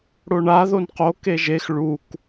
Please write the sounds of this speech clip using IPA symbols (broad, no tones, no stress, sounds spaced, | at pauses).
ɽ o ɳ a ð o n q o k e ʒ e x ɭ u k